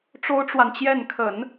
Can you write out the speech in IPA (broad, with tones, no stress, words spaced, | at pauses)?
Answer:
ʈ͡ʂo˥ʊ̯ʈ͡ʂwa˨nt͡ɕjɛ˥˩n kʰə˨˩˦n